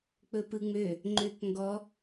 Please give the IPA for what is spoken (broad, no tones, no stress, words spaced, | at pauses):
k͡pɵpɯŋ͡mø | ŋ͡ǃøkŋɡɔ